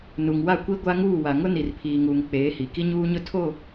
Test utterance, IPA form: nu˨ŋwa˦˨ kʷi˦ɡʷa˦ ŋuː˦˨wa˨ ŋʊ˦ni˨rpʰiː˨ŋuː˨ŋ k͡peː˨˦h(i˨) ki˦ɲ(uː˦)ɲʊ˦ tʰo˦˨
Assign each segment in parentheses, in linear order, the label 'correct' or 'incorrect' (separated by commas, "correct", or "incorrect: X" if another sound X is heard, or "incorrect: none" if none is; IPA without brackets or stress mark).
correct, correct